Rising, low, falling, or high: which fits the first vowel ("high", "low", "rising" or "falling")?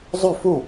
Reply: falling